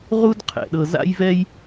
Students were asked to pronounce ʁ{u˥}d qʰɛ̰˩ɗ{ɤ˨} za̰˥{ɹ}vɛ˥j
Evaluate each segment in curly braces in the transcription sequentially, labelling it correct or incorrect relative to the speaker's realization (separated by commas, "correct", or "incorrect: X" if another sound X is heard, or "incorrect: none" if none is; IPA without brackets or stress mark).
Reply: correct, correct, incorrect: j